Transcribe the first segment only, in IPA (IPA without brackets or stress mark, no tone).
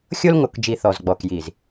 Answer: xʲ